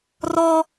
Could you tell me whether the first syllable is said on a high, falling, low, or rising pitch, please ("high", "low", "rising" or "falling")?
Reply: high